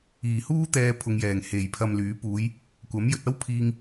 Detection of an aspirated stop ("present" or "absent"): present